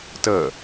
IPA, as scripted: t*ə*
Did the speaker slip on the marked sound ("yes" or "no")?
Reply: no